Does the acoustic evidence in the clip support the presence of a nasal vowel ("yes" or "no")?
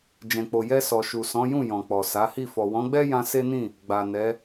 yes